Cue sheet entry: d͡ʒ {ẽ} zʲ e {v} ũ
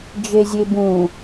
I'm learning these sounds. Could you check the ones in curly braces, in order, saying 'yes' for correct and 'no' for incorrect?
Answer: no, no

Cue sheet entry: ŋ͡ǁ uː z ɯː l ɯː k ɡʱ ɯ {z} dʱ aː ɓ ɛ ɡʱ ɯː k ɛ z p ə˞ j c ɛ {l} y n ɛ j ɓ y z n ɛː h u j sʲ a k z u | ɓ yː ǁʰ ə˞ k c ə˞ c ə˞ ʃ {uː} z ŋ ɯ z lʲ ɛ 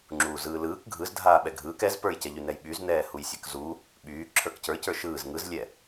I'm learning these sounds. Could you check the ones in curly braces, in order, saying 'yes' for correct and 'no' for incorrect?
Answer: yes, no, no

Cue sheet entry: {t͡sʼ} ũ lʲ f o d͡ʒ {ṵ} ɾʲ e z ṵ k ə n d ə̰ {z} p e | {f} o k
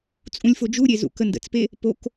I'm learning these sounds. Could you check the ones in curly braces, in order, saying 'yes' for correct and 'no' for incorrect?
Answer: yes, no, no, no

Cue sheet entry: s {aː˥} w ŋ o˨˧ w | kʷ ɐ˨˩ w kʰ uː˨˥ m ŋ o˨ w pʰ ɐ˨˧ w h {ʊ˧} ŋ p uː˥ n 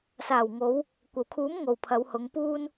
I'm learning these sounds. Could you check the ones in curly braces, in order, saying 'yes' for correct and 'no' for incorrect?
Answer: no, no

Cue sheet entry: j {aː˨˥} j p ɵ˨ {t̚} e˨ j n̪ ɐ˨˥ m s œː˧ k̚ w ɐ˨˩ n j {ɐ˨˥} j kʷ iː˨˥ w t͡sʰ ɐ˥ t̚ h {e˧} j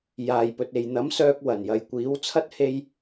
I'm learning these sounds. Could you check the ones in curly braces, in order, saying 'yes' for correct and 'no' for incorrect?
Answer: no, yes, no, yes

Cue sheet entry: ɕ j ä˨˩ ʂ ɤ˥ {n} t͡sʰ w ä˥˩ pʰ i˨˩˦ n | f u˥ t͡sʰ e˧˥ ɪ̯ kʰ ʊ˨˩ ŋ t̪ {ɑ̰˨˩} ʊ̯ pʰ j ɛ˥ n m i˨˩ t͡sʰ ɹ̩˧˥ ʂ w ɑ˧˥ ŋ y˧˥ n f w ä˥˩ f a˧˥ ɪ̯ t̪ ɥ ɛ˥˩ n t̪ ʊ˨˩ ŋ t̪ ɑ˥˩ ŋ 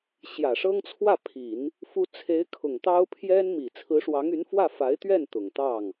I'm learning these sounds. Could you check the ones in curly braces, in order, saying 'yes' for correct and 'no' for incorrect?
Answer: no, no

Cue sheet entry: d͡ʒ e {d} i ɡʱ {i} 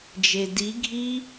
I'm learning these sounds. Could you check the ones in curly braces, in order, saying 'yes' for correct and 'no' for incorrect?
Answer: yes, yes

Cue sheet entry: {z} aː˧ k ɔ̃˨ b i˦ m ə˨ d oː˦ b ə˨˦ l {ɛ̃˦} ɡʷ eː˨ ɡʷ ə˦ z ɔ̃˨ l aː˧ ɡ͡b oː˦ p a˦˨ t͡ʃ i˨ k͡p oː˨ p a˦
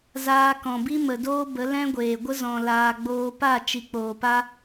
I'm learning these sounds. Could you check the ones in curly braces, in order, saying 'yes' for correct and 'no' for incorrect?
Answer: yes, yes

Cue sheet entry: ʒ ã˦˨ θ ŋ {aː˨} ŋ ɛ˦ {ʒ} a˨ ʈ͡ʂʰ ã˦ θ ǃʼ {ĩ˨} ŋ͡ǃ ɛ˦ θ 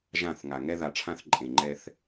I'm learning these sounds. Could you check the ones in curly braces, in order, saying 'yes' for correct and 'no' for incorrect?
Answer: no, no, no

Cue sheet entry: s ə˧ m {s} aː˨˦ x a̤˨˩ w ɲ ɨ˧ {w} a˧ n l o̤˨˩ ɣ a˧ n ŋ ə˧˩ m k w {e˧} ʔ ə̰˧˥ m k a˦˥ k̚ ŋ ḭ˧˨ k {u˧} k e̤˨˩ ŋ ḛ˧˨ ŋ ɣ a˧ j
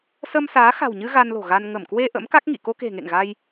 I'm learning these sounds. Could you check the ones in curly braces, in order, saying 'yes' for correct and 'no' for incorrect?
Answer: yes, no, yes, no

